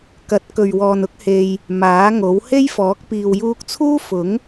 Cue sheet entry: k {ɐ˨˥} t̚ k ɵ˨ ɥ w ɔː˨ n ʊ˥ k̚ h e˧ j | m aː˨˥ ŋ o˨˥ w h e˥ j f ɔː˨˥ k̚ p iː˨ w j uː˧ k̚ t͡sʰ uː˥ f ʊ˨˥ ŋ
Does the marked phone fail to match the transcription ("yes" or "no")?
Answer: no